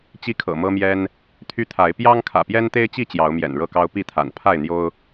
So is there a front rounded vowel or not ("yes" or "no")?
yes